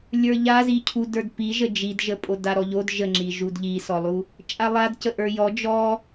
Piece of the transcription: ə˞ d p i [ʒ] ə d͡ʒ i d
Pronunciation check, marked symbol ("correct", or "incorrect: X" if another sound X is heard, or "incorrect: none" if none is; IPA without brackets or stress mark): correct